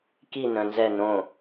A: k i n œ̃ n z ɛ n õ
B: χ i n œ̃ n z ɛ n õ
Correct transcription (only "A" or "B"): A